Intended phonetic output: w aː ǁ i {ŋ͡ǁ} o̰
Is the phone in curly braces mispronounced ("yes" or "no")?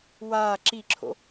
yes